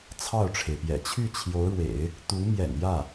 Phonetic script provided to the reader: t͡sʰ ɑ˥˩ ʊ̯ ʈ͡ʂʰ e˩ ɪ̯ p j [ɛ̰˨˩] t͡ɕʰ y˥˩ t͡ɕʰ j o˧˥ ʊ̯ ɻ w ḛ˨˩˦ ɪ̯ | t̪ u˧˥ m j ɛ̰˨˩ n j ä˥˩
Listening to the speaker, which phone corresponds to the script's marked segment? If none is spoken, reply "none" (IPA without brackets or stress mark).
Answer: ɛ̰˨˩